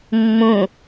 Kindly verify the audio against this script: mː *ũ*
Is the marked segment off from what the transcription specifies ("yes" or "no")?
no